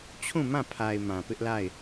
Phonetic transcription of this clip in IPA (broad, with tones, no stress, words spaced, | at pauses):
t͡ɕʰũ˦˨mã˦˨pʰa˨ɪ̯ mã˨pɪ˦ʔla˦˨ɪ̯